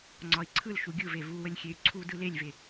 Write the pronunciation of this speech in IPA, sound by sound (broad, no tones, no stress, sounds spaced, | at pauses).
ŋ͡ǀ ɒ i̯ ǀʰ ɯ l ʃ u ɡʲ ɯ v e v u w ə lʲ xʲ e y̯ ǀʰ u d ɯ l e lʲ v e